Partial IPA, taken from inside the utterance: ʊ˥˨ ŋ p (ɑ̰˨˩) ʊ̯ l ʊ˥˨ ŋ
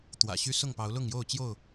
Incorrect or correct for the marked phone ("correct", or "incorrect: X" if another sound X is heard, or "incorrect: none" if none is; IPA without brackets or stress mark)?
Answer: incorrect: ɑ˨˦